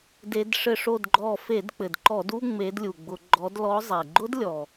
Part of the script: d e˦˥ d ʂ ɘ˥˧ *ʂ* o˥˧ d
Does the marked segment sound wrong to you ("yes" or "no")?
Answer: no